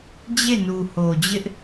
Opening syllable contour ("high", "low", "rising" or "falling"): falling